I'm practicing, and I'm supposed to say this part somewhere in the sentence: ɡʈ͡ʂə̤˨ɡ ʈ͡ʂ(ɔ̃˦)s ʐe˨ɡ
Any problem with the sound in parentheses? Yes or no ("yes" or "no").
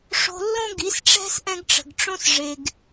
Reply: yes